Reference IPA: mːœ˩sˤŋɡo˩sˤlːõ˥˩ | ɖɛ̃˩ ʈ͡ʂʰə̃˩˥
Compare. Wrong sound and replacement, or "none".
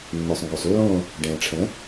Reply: none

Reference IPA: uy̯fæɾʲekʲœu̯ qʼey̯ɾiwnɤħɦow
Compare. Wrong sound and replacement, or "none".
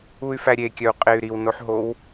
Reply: ɤ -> o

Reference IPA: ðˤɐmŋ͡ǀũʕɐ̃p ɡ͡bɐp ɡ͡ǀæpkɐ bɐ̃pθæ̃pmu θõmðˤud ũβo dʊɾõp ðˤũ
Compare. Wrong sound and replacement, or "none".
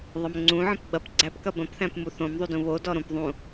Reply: ʊ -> ɔ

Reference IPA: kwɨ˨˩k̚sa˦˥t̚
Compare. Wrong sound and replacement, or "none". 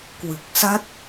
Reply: none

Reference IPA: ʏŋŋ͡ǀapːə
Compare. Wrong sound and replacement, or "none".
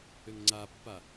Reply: ə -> a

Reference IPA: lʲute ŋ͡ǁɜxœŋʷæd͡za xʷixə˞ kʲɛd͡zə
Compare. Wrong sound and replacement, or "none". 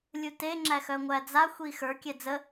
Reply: ɜ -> æ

